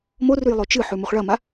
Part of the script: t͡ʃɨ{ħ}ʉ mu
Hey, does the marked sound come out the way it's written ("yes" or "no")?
yes